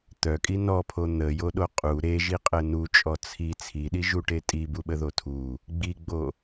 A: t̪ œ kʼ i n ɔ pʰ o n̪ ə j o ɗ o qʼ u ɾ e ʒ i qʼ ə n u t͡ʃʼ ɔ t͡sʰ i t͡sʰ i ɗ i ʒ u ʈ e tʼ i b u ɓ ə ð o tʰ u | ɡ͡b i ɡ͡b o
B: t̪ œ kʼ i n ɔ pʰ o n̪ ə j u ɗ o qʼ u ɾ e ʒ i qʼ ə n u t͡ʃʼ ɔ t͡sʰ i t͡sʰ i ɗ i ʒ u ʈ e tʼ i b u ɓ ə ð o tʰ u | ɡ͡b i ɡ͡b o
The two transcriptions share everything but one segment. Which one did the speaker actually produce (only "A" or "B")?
A